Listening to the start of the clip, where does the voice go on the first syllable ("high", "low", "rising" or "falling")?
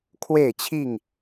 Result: falling